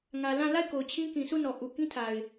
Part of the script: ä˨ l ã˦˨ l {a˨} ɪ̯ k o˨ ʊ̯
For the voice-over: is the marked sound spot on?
no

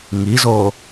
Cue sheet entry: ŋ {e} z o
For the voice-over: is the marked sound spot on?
no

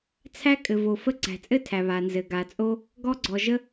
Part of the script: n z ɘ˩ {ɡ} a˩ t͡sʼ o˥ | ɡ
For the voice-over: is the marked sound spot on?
yes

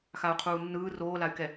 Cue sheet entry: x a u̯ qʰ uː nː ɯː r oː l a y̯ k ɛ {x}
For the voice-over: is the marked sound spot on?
no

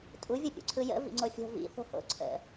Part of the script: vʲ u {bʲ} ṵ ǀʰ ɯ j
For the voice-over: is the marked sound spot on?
no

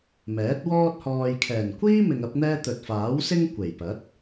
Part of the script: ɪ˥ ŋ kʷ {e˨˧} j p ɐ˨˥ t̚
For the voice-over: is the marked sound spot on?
no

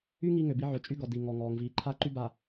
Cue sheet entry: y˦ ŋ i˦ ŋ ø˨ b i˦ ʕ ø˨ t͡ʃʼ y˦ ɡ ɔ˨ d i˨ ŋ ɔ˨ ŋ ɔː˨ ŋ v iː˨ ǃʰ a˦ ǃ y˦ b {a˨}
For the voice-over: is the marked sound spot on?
yes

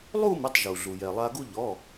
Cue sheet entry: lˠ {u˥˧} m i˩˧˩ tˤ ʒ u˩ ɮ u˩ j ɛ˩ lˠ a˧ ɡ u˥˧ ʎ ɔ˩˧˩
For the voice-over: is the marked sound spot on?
yes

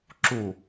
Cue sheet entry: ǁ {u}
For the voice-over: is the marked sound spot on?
yes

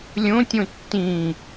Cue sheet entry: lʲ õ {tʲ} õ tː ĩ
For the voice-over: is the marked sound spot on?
yes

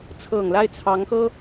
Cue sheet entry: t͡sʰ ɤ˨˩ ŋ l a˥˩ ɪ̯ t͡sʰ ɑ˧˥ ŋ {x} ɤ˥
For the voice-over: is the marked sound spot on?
yes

